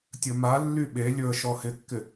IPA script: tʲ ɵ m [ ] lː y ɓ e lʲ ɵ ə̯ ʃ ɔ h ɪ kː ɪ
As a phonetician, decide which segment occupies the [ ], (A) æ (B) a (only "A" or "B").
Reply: B